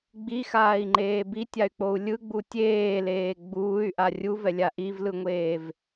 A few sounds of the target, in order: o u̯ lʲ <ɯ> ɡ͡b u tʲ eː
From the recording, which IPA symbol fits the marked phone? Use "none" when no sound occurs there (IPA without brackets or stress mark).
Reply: ɯ